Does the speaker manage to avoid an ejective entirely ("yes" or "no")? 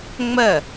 yes